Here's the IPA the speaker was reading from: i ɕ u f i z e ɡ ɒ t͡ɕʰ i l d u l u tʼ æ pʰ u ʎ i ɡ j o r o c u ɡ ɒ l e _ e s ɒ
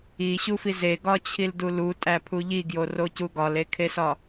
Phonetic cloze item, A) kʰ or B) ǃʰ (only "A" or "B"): A